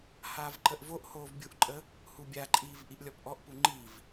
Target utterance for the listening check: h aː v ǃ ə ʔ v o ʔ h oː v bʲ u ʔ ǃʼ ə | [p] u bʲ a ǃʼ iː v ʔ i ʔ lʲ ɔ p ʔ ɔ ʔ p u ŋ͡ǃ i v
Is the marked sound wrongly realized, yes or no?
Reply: yes